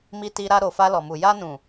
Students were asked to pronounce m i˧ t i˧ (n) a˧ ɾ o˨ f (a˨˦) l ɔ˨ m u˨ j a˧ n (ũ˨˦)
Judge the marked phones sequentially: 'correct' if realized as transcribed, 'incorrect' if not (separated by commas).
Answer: incorrect, incorrect, incorrect